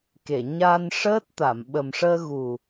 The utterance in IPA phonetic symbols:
k e˨˩˨ ɲ a˧ n ʂ əː˦˥ t̚ t̪ a˨˩˨ m ɓ ə˨˩ m ʂ əː˧ ɣ u˨˩

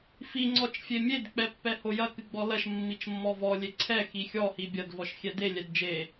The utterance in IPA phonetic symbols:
f i ŋ͡ǀ ɔ t͡ʃ fʲ e mʲ e d k͡p ɛ pː ɛ h o j ɐ k ɨ ɡ͡b ɔ l ɐ ʃ mː i t͡ʃ mː ɔ v ɔ lʲ e ǀʰ ɛ x i xʲ ɔ h i bʲ ɐ d v ɔ ʃ xʲ ɛ d e lʲ ɛ d d͡ʒ e

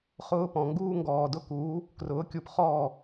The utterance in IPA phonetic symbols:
χ ʊː˦ p ɔ̃˨ ŋ ɡ uː˦ ŋ ɡ ɔː˨ d ʊ˦ k uː˨˦ | k r ʊː˨˦ kʲ u˧ p χ ɔː˦˨

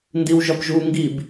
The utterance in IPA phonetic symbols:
n d i w ʒ ɒ p ʒ u ŋ ɡ i b

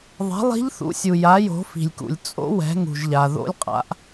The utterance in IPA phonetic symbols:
ðˤ ɛ̤˩˥ lˠ i̤˧˥ ʎ θ ṵ˩˥ sʲ u˩ j a˩˥ j o̤˩˥ f i̤˩ lʲ k ṵ˩ lʲ t͡sʼ o̰˧˥ w ɛ̤˩˥ ŋ ṳ˩ ʒ ʎ a˩ ð o̰˧˥ lʲ qʼ a̰˩˥ ʔ

